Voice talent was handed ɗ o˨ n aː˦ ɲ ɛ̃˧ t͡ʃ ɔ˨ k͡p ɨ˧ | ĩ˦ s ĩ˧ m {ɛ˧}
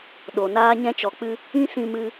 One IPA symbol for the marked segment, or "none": ɨ˧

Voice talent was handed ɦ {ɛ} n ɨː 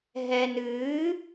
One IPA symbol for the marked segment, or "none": ɛ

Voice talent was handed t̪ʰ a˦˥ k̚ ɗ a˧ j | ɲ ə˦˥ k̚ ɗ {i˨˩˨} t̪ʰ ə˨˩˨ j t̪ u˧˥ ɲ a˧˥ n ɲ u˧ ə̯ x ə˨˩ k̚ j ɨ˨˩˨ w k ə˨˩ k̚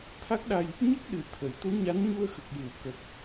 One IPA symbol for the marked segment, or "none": ɨ˨˩˨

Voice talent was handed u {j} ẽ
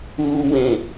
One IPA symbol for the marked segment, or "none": w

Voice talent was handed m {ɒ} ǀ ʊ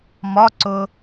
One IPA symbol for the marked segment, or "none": ɒ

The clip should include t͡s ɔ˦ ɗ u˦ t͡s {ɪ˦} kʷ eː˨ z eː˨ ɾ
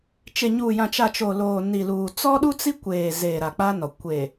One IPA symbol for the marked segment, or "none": i˦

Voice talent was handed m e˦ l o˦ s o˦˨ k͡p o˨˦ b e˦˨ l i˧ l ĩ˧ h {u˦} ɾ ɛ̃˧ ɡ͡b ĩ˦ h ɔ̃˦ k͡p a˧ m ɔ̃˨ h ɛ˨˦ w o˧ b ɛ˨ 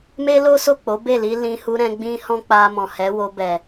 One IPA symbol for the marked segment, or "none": u˧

